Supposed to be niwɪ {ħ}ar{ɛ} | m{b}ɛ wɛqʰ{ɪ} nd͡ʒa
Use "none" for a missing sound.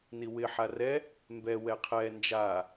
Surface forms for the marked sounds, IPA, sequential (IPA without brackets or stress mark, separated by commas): ħ, ɛ, b, ɛ